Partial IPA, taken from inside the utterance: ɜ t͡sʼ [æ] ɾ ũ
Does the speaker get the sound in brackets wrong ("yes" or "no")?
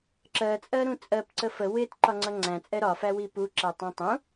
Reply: yes